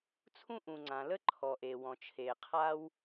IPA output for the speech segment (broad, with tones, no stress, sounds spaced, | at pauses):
t͡sʰ ũ˥ ʔ ũ˩ ŋ͡ǀ ã˩ l ə˥ ǃʰ ɔ˩ ʔ e˩ w ɔ̃˩ t͡ʃʰ e˩ qʰ a˥ w